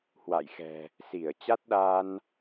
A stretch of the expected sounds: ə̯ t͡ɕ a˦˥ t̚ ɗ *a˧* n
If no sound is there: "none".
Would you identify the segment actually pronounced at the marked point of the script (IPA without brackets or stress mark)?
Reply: a˧